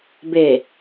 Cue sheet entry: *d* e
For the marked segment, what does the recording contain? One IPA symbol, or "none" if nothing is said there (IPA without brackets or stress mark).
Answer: b